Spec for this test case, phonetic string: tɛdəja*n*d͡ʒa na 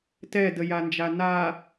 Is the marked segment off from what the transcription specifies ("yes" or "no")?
no